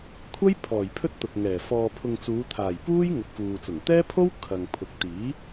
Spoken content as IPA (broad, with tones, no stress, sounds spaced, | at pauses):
kʷʰ ɐ˥ j pʰ ɔː˨˩ j pʰ ɵ˥ t̚ t̪ ʊ˨ k̚ ŋ ɛː˨˩ f ɔː˨ pʰ ʊ˨ ŋ t͡s uː˨˧ t̪ʰ aː˨˩ j p uː˥ j ŋ ɐ˨ k̚ f uː˨ t͡s ʊ˨˩ ŋ t̪ ɛː˥ pʰ o˥ w kʰ ɐ˨ ŋ pʰ ʊ˨ k̚ t̪ iː˨˥